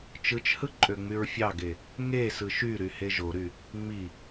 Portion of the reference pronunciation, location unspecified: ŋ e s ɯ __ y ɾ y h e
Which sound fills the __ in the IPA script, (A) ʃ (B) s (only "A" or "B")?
A